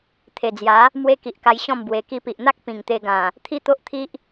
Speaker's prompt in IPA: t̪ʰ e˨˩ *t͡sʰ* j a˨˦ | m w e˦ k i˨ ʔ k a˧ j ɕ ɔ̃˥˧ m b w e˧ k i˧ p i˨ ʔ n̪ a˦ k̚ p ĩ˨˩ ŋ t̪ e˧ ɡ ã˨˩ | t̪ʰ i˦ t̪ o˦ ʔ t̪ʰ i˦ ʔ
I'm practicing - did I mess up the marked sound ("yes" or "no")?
yes